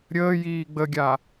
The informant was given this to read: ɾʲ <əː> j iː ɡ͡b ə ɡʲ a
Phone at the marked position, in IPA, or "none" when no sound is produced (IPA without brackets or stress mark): əː